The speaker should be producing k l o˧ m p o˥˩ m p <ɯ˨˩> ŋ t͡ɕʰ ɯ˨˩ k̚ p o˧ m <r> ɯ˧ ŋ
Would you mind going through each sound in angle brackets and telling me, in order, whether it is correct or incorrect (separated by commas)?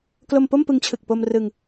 incorrect, correct